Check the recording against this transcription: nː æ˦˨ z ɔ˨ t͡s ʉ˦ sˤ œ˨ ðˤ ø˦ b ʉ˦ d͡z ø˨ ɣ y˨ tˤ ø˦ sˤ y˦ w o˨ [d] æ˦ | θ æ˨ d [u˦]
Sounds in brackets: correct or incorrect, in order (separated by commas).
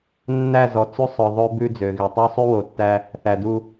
incorrect, correct